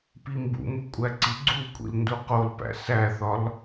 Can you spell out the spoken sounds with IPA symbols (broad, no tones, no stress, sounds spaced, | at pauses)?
p i m b ṵ m u kʷʼ æ ǀ i ɡ͡ǀ u kʷʼ ḭ l n d u q o l p æ̰ s æ θ ɒ l